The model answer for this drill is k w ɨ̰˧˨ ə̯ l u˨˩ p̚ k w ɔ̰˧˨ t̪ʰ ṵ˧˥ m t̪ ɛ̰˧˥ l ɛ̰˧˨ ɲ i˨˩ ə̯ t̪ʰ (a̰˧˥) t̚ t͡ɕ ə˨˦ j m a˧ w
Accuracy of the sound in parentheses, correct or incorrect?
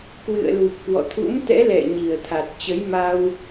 incorrect